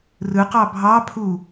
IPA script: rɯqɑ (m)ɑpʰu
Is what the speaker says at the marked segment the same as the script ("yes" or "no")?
no